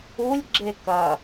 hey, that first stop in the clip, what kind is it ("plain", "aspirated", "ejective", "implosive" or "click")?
click